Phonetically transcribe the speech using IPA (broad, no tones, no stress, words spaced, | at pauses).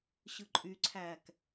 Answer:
ɕɯǃʼyǀʰæːk